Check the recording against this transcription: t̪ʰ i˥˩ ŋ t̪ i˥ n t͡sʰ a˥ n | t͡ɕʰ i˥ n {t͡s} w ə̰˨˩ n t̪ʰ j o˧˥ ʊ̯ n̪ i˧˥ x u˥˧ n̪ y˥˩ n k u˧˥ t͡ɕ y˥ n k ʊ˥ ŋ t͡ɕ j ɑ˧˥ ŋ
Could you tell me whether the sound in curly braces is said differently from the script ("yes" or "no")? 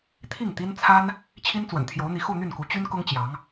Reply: no